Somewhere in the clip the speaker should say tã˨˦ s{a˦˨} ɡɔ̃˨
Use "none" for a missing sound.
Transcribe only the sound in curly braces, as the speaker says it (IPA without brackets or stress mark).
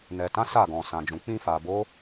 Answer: a˦˨